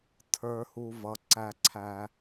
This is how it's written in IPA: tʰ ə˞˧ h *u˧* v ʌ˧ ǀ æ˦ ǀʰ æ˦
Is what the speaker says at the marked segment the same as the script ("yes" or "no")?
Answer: yes